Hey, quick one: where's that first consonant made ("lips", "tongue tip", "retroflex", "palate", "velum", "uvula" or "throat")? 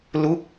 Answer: tongue tip